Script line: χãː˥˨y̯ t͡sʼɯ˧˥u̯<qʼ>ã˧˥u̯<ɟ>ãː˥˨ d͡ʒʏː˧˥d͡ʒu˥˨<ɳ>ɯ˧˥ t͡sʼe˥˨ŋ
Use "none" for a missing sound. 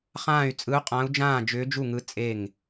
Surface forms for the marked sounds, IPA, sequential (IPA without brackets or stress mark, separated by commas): qʼ, d͡ʒ, ŋ